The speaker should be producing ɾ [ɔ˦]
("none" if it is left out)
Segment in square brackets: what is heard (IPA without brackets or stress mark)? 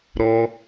ɔ˦